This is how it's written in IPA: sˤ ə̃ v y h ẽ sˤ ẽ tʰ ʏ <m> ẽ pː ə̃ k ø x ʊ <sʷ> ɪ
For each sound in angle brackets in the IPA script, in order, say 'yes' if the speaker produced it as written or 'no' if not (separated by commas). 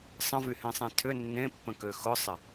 no, no